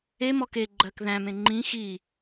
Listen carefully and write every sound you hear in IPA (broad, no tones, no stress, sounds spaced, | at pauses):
e m ɔ k e ɡ͡ǃ ɜ k ð æ̃ m ẽ ŋ͡ǃ ĩ x i